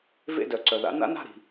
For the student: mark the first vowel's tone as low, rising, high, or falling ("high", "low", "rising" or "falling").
falling